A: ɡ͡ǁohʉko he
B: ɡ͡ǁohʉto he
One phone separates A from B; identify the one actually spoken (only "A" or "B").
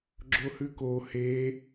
A